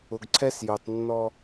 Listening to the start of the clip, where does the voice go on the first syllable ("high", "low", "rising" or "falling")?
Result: low